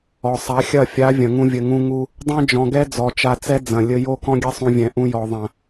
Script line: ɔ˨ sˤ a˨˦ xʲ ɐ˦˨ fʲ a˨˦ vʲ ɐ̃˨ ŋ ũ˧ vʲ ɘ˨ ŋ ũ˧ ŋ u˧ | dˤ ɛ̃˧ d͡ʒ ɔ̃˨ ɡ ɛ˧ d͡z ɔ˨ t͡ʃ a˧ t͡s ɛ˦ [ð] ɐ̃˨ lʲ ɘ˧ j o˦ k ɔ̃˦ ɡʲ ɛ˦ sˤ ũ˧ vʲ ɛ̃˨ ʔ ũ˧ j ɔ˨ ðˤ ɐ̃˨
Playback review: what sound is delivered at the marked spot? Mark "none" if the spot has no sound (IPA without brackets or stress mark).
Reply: d͡z